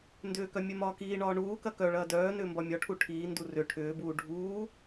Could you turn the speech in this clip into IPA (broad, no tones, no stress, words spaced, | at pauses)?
ndʏːkœ mʲœmɒːkiːɳɒː ɳuː kɐkœɭɐː dœː nʏːmbɒmʲɒʈʰu ʈʰiːndu rʏ ʈʰʏːbuː ɖʱuː